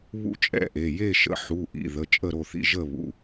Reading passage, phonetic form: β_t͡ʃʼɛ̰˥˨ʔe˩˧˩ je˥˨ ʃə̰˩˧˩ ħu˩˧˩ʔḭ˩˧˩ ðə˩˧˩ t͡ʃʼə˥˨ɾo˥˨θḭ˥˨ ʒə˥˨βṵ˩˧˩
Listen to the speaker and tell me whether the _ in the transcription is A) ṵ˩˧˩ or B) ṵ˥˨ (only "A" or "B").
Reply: B